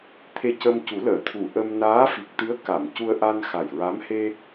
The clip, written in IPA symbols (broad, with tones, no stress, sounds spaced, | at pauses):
t̪ʰ e˧ c ə˧ m c u˨˩˦ l əː˨˩˨ t̪ʰ u˨˩˨ ʔ ə˧ m n aː˧˥ f i˨˩ k̚ t̪ ɨ˧˥ ə̯ k a˨˩˨ m c u˧ ə̯ ʔ a˧ n x a˨˩ j ɹ a˧˥ m h e˧